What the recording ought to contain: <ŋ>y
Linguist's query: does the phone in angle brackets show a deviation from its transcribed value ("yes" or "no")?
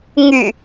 no